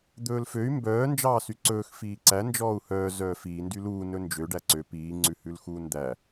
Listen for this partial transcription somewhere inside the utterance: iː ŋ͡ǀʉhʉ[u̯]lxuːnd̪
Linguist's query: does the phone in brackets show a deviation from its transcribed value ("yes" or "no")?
yes